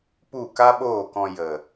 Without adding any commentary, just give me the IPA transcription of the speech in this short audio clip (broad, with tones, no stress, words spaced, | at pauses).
pu˦˨ka˦ɓoː˦˨kɔ̃˧ jə˨